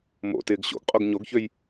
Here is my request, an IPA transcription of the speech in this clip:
mo̰ tɪːɡɕo̰ɡqʼoɡ ɲoɡçøj

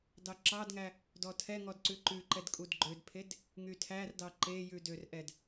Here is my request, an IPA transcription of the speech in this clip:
dɑǁɑdŋæ | dɔtʰɛŋɔd ǀʉǃʉǃɛd kʼudɡ͡ǃødpʰed | ŋytʰærdɑ ǃejʉ dørʔɛd

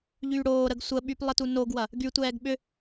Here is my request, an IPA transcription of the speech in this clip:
ʎyːɽoːɾəɡ sʷəɓyp lˠətunoɡwɐ | ɡytʷɛːɡ ɓʏ

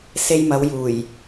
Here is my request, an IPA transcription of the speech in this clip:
se˧jmɐ˨˧wjuː˨˩j

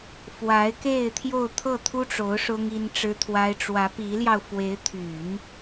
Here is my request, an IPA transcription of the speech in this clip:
fwa˧˥ɪ̯ke˥˧ɪ̯ t̪ʰjo˥˧ʊ̯t̪ʰɤ˥˩ t̪ʰu˥ʈ͡ʂo˧˥ʊ̯ ʂʊ˥ŋi˥nʈ͡ʂɻ̩˥t̪ʰwa˥ɪ̯ ʈ͡ʂwä˧˥pi˧˥ljɑ˧ʊ̯ fwe˧˥ɪ̯t̪ʰy˨˩˦n

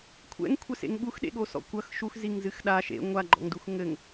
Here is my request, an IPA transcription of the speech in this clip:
kʷʰɛ̰ŋkʷʰɛsḛŋ ɠux ɗḛɠosɔ̰kʷɐx ʃuxziŋ zɨxɗa ʃḛ ŋʷaɡ͡ǃɔ̰ŋdux ŋɘŋ

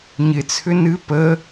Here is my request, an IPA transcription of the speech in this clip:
ɲɪt͡sʰʏ nɨ pə

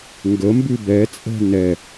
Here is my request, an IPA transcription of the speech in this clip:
ŋɡəmbʉ bɛt͡sʼɛ̤ nɛ

